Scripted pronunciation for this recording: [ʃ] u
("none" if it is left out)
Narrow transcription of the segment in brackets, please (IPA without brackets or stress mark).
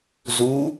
z